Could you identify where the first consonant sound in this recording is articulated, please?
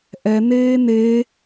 glottal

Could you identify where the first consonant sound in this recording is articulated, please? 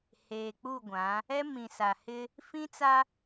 glottal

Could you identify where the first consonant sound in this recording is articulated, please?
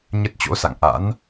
palatal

